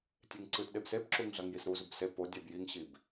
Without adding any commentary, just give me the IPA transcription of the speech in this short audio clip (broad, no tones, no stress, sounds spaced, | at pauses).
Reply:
tʲ e ŋ ǀ ɨ t ɗ e b s e b ǁ u ŋ ɮ ɐ ŋ j i s ɾ u z u b s e p o dʲ ɛ b j i ŋ ɕ i b